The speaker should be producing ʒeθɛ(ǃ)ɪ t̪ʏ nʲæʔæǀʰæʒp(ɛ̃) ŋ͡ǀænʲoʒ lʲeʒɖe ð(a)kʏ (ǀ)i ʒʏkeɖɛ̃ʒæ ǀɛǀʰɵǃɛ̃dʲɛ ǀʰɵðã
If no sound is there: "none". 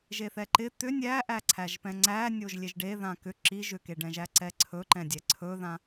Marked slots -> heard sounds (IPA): ǃ, ɛ̃, ã, ǁ

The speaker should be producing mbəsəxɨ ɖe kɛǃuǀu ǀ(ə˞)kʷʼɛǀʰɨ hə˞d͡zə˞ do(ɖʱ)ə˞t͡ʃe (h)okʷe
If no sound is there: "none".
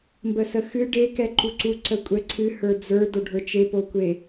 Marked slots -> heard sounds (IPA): ə, ɖʱ, p

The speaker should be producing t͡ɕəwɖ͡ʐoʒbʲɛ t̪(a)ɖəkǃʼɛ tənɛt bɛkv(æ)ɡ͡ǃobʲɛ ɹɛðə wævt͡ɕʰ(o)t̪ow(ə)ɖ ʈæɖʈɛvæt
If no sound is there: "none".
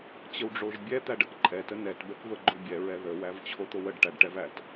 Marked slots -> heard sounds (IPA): æ, ə, o, ə

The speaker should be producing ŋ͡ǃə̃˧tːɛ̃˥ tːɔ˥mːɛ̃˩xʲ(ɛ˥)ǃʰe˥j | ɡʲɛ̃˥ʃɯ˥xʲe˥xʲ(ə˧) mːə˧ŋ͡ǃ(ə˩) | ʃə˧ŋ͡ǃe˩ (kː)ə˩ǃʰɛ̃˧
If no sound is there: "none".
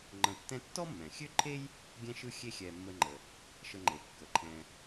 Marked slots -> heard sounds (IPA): ø˥, ɛ˧, ə˩, kː

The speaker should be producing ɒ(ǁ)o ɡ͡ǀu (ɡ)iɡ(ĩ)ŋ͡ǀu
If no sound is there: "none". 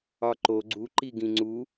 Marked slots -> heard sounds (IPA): ǃ, ǃ, ĩ

